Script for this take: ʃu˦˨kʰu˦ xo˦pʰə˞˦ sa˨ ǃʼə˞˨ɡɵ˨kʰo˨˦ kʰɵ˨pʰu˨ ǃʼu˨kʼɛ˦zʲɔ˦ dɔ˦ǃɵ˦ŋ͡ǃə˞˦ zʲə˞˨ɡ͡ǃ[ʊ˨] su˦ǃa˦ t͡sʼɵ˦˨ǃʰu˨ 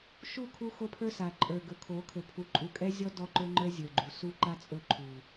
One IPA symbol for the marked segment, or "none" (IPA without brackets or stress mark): u˨